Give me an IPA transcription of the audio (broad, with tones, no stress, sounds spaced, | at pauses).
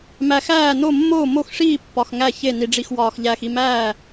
m æ˨ x æː˥˩ n o˥˩ mː oː˥˩ m o˥˩ x ʂ iː˥˩ pː ɒ˨ x ŋ æ˥˩ ç e˥˩ n i˨ ɖ͡ʐ i˨ x w ɒː˨ x ʎ æː˨ x i˥˩ m æː˥˩